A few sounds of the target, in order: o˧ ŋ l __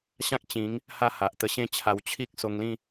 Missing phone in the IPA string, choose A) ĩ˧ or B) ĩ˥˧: B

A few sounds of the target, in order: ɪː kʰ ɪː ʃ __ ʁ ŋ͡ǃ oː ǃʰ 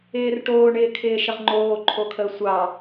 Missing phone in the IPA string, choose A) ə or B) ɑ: A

